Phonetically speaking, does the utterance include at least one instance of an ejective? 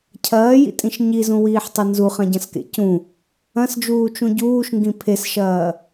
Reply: yes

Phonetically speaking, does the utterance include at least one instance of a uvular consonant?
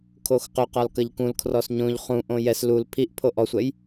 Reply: yes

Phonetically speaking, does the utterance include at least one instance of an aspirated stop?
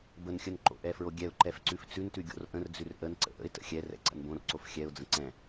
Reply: no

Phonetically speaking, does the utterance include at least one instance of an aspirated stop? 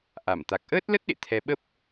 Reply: yes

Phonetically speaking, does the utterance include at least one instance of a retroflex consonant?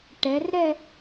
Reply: yes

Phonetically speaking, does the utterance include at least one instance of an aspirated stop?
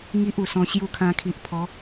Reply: yes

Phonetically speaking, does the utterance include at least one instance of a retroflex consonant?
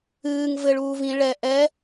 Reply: yes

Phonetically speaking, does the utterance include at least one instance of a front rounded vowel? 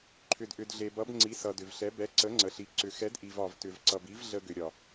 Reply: yes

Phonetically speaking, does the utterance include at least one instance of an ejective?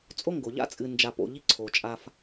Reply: yes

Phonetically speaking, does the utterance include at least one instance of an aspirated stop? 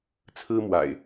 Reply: yes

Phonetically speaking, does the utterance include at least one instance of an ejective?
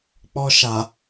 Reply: no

